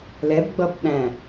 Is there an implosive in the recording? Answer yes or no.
yes